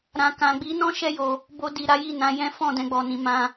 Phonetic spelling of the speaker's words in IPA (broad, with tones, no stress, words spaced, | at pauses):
ɾã˨kã˨ ɡ͡bi˨˦nɔ̃˦ ʃɛ˦jo˧ | bo˧di˨ ɾa˨˦ji˦˨nã˨˦jɛ̃˦ fɔ̃˦˨dɛ̃˧ɡ͡bɔ˨ nĩ˨mã˧